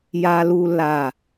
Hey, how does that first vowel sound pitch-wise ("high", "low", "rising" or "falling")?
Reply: high